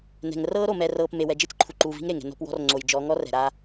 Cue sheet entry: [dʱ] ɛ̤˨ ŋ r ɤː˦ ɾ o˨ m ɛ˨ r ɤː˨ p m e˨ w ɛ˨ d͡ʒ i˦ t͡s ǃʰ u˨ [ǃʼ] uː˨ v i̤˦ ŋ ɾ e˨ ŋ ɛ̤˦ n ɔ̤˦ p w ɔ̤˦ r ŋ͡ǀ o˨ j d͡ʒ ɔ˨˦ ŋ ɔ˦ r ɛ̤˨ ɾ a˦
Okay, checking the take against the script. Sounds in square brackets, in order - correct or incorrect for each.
incorrect, incorrect

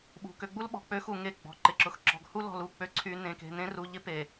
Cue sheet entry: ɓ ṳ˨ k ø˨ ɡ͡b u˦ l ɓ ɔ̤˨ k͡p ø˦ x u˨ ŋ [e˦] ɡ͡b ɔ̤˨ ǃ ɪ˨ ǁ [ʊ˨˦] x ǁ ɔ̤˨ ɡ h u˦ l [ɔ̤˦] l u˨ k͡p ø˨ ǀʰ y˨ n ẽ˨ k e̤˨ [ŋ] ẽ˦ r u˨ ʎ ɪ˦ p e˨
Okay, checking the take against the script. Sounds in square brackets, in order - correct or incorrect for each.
incorrect, incorrect, incorrect, incorrect

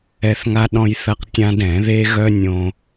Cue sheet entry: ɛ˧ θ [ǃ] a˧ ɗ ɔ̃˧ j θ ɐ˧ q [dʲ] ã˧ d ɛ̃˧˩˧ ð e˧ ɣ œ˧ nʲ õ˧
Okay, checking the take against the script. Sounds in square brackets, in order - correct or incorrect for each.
incorrect, incorrect

